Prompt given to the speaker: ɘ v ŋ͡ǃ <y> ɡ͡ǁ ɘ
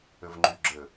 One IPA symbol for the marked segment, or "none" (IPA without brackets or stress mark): y